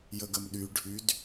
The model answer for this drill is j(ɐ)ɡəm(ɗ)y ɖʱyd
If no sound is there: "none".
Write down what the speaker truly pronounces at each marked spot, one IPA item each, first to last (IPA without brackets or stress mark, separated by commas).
ə, ɗ